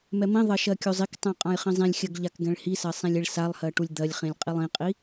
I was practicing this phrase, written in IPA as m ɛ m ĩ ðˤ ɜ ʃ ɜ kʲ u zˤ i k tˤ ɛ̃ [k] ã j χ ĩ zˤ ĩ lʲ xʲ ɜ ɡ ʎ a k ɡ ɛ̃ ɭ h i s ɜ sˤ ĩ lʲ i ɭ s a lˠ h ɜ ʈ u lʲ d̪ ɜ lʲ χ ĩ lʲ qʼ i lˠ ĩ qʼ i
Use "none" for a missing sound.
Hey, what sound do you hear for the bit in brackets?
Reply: qʼ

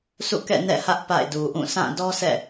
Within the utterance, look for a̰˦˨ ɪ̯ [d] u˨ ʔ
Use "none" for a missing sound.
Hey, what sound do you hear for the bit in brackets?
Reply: d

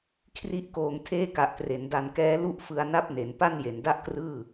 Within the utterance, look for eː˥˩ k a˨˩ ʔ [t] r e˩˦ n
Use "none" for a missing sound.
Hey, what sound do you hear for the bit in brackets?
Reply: t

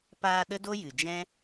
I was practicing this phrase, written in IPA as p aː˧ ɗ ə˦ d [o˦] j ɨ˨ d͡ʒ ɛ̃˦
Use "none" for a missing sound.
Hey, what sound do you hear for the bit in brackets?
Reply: o˦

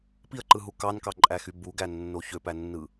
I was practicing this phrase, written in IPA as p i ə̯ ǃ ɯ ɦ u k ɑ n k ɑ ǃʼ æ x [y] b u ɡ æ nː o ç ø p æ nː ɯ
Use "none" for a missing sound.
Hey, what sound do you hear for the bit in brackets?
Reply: y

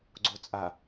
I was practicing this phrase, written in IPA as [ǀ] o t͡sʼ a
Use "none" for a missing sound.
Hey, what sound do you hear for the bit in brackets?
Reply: ɡ͡ǀ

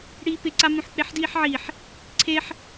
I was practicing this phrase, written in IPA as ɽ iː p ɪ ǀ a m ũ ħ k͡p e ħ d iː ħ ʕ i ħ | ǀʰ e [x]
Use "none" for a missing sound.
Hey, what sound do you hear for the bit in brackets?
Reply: ħ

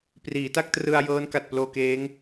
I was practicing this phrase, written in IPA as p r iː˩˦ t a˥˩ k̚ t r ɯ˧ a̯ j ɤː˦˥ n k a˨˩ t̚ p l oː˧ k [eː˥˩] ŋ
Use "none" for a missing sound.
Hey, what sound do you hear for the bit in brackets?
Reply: eː˦˥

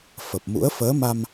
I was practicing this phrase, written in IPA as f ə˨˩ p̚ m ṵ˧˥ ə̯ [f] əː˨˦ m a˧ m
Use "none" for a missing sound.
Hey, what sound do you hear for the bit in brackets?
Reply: f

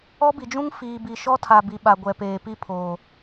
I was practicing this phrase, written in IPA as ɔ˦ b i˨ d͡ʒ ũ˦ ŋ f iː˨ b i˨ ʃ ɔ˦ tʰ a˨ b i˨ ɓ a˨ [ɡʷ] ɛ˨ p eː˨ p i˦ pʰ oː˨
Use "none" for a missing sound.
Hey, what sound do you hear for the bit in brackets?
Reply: ɡʷ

